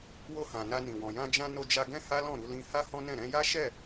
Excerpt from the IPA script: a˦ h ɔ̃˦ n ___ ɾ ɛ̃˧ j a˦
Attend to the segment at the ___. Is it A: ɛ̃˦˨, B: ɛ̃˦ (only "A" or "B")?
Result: A